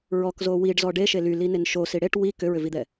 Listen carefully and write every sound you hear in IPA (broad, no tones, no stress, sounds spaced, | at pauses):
ɹ ɔ k z o w i ɖ z ɔ ɖ e ʃ e l y l i n e n ʃ o s i ɽ e ʈ w i k ʏ ɹ ʏ v i d̪ ɛ